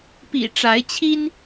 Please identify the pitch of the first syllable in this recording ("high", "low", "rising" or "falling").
low